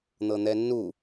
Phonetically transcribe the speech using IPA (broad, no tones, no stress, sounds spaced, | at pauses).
n̪ ɤ n̪ ɛ nː u